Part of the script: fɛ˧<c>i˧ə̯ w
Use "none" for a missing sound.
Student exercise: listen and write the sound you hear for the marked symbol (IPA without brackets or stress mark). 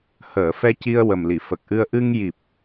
c